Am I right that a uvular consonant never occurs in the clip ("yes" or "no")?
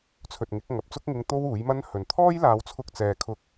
yes